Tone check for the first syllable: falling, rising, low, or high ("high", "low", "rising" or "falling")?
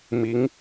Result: rising